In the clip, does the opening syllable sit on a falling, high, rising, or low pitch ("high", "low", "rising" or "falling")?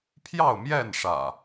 falling